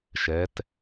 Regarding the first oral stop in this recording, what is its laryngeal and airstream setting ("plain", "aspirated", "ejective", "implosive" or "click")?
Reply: plain